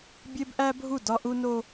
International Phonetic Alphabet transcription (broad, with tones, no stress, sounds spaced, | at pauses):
bʲ e˦ b ʔ æ˦ bʱ u˦˨ d ɒ˦ ʔ u˦ n o˦